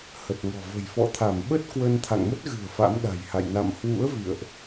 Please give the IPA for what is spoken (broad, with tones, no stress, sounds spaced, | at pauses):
h ə˨˩ t̚ ŋ ɔ̤˨˩ v ə̤˨˩ j f ɔ̰˧˨ t̪ʰ a˧˩ m ɓ ə˦˥ t̚ k w ə˧ n t̪ʰ a̰˧˨ ŋ m ə˦˥ t̚ ɣ ɨ̤˨˩ ə̯ f a̰˧˥ m ɗ a̤˨˩ j h a̰˧˨ j n a̰˧˨ m h w ṵ˧˥ ə̯ v ḭ˧˨ ə̯ ʔ